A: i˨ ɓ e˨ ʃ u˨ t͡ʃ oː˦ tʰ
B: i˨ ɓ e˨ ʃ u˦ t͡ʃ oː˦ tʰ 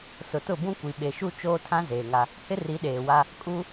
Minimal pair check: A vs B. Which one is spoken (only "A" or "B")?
B